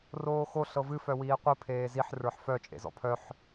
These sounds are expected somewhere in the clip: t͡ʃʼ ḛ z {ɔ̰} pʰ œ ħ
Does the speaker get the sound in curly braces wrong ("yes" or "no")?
no